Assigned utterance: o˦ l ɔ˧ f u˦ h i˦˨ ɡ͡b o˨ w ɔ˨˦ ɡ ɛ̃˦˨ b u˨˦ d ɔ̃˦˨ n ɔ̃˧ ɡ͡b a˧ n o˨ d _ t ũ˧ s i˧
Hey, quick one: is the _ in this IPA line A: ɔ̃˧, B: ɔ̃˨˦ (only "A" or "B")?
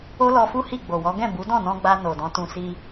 B